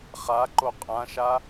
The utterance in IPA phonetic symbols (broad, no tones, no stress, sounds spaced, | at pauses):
χ a ǃ o qʼ ã ʃ a